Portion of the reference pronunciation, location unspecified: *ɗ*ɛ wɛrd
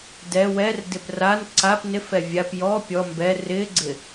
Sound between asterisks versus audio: incorrect: d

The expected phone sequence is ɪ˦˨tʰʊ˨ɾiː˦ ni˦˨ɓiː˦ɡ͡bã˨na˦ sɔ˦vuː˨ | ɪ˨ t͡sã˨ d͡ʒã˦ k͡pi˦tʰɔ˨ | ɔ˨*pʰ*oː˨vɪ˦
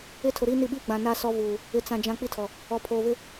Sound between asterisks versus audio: correct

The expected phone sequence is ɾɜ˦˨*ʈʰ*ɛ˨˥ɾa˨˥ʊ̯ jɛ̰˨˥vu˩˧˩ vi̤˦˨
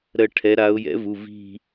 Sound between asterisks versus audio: correct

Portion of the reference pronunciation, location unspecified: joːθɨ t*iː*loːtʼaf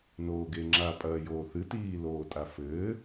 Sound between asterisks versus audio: correct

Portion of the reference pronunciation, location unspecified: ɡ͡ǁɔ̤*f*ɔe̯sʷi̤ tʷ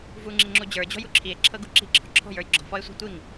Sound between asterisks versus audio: correct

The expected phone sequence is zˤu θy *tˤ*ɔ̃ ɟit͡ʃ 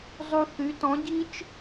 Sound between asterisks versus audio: incorrect: t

